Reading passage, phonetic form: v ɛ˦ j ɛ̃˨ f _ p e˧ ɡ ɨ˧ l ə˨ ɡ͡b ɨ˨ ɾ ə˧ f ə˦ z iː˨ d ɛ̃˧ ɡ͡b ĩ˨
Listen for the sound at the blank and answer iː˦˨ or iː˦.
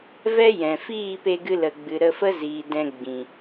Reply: iː˦˨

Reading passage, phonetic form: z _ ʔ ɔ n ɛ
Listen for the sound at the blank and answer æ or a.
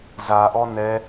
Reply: a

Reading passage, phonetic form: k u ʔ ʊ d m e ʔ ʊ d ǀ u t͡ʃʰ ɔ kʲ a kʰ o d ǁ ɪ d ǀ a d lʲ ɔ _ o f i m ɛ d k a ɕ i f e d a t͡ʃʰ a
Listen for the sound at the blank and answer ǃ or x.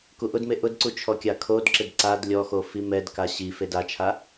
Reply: x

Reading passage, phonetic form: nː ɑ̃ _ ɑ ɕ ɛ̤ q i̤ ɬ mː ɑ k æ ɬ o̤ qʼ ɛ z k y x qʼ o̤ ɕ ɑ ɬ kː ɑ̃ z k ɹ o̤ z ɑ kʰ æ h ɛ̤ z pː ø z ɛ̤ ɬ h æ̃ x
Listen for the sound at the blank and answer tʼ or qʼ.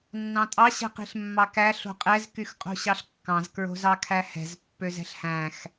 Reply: tʼ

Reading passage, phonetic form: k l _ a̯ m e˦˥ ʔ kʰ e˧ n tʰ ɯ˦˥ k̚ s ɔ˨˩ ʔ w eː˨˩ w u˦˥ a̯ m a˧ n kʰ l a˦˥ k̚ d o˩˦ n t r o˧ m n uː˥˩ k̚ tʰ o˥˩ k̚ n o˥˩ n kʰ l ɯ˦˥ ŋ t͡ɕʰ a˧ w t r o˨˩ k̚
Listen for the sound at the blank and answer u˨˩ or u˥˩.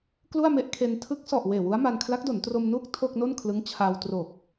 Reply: u˥˩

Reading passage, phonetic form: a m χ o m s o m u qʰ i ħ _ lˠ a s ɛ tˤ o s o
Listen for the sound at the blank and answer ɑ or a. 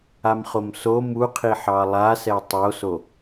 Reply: ɑ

